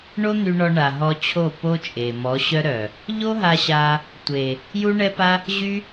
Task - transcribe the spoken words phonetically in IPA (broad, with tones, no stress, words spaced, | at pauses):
ɳo˦n̪y˧ɳɔ˧ ɳa˨ɦɔ˧t͡ɕʰo˦˨ po˦t͡ʃʼe˨ mɔ˨˦ɕœ˦ ɾœ˨ | ʎo˦ɦa˧ɕa˧ | tʷe˨ | ju˦ɳɛ˦pa˦ | ʑy˦